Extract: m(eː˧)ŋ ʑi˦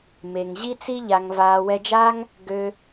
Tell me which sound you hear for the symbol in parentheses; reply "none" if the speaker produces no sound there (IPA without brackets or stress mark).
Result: e˧